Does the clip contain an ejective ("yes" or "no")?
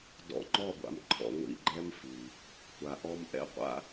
no